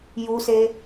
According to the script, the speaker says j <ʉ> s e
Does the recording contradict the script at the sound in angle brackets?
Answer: yes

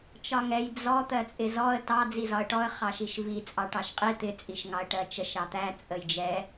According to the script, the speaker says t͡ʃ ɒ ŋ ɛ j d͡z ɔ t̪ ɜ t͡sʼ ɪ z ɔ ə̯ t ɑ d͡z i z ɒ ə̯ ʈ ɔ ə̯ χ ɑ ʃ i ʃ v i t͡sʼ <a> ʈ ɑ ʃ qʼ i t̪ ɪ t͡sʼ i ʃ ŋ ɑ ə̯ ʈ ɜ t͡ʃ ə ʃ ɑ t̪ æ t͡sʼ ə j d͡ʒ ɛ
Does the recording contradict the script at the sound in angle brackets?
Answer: yes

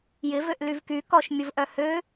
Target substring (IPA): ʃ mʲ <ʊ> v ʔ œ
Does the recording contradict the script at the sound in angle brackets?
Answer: no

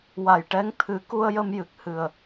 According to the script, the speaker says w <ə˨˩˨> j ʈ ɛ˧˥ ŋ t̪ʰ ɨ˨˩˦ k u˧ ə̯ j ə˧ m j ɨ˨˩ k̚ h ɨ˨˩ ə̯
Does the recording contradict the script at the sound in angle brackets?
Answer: yes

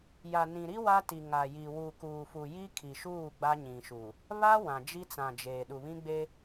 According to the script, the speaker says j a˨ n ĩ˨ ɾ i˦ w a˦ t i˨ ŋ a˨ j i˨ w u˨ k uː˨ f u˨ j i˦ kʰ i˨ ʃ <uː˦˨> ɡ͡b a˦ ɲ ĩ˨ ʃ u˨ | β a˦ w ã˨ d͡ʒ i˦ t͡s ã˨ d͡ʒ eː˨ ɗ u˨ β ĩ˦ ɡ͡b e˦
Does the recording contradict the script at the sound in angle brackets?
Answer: no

